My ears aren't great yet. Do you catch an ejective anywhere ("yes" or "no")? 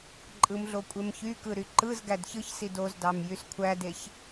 yes